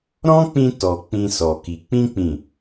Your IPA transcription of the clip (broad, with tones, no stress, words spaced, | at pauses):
ɾɔ̃˦k͡pĩ˧ tɔ˨ k͡pĩ˧sɔ˨ki˨ k͡pĩ˧k͡pĩ˨